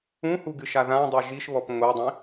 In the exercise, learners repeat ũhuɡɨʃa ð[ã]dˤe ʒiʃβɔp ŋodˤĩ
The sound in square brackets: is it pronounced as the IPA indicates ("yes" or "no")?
yes